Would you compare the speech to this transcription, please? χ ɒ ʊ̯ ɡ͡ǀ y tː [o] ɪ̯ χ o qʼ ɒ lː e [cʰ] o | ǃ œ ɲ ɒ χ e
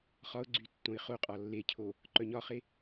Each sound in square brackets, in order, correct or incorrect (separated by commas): incorrect, correct